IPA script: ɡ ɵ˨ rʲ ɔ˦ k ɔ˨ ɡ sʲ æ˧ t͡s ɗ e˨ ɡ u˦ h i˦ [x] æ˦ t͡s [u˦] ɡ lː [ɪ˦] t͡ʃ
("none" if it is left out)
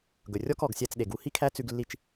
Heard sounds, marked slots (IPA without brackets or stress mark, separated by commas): kʰ, ʉ˦, i˦